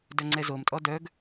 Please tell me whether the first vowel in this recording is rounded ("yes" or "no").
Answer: yes